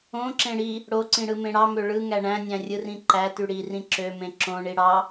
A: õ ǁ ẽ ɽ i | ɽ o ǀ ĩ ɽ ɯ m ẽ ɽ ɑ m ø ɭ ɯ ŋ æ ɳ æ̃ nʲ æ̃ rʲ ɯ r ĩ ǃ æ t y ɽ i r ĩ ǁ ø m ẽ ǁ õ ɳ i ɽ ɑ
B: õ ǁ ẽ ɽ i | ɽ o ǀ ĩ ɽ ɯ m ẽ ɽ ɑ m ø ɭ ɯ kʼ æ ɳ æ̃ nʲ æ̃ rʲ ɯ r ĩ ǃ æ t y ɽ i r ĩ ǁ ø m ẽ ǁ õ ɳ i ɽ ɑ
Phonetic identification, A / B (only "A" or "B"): A